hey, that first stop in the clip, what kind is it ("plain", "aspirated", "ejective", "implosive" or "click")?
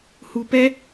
plain